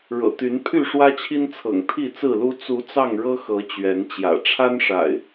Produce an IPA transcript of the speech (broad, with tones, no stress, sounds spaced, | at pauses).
ɻ ɤ̰˨˩ t̪ y˨˦ n pʰ y˥˨ ʂ w ä˦ t͡ɕʰ i˦ n t͡sʰ ɤ̰˨˩ ŋ t̪ʰ i˥˨ t͡s ɹ̩˥˨ l u˦ t͡s u˨˦ t͡s ɑ˥˨ ŋ ɻ ɤ˦ x ɤ˨˦ t͡ɕ ɥ ɛ˨˦ n t͡ɕ j ä̰˨˩ ʈ͡ʂʰ a˦ n ʂ a̰˨˩ ɪ̯